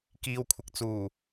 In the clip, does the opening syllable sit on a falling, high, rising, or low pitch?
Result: low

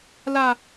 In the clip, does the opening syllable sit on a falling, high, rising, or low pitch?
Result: high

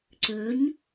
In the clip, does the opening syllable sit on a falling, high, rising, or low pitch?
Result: rising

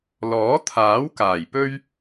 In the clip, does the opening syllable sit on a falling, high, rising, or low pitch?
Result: rising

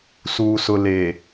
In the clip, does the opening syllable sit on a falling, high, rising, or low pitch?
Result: low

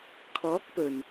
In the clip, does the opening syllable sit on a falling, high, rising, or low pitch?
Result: rising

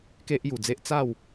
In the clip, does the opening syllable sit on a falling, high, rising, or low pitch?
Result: high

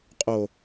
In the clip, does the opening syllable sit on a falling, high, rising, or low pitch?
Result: low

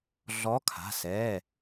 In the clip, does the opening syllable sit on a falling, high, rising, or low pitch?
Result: rising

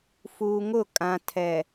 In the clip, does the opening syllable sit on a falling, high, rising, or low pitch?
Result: low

